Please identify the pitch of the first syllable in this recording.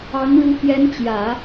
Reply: rising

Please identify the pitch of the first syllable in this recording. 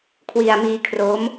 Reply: low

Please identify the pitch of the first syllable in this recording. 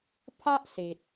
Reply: high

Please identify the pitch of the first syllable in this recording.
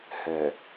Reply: low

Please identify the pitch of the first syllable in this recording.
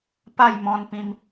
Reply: falling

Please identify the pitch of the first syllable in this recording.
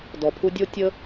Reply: low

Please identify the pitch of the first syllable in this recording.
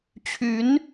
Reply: rising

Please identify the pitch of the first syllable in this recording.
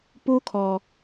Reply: high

